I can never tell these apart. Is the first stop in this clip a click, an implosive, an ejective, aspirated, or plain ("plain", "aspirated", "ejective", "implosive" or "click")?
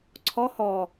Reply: click